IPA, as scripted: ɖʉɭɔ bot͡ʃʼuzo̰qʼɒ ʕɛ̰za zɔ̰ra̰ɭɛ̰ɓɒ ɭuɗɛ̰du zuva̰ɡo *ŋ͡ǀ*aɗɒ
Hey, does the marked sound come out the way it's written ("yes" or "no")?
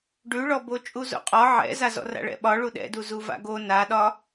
no